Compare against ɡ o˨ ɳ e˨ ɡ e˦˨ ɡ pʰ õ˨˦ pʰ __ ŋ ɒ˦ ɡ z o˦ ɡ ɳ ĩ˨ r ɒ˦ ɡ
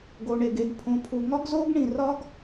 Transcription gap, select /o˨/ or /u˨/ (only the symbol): u˨